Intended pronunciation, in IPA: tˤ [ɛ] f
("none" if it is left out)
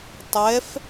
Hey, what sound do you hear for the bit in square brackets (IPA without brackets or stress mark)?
ɛ